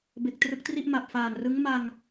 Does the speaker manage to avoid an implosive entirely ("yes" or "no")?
yes